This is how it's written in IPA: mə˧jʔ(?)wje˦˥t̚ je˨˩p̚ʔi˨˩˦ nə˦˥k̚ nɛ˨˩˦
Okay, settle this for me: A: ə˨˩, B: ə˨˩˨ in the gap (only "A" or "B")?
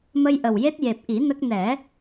A